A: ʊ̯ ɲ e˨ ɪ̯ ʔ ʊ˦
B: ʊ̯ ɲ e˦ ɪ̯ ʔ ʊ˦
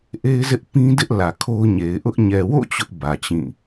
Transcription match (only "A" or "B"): A